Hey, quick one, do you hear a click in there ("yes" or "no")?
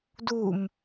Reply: no